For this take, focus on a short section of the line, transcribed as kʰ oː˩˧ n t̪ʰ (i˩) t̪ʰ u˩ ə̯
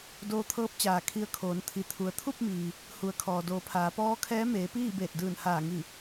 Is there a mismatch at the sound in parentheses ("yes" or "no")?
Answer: no